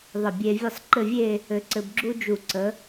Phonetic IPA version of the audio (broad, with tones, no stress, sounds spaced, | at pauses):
ðˤ ɘ˧˩ bʲ e˧ vʲ ə˥ sˤ ǃ ɘ˥˧ vʲ e˥˧ | ɘ˧ ǀ ɘ˧ b ɡ͡ǁ u˥ d͡ʒ u˧˩ ǀ ə˩˧